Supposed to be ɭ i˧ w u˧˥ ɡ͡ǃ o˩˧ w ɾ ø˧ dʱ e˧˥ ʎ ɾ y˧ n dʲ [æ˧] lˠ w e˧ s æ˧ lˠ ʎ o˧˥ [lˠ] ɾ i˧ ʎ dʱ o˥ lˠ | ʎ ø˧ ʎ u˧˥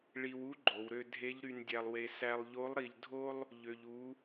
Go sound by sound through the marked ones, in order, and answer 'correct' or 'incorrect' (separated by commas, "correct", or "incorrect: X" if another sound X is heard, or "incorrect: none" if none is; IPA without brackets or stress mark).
correct, correct